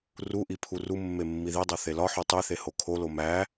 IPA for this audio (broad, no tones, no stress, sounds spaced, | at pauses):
r u ʔ i pʰ u r u mː e mː i ð i dˤ o θ e l ɒ ħ o tˤ i θ e h o kʰ o l o m æ